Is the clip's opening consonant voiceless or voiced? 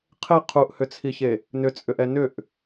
voiceless